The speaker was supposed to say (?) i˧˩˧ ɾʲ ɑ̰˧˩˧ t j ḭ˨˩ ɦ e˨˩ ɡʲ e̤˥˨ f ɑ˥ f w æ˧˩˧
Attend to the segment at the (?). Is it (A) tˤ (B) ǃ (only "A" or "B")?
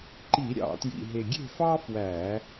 B